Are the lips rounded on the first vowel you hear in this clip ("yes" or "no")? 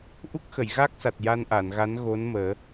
yes